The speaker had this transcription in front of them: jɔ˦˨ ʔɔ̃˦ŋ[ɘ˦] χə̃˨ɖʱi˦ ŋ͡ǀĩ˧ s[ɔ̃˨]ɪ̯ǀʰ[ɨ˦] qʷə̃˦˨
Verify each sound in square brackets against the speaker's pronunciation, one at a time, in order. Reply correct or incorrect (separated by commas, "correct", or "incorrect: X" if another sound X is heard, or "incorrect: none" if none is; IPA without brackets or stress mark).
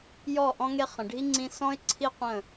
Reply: incorrect: e˦, incorrect: ɔ̃˦, incorrect: i˦